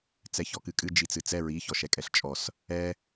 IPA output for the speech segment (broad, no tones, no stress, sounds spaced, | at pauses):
t͡s ɛ ç ɔ k ɨ kʼ ɨ d͡ʒ i t͡s ɨ t͡s ɛ ɹ i ç ɔ ʃ ɛ kʼ ɛ ɬ t͡ʃʼ ɔ s | ɛ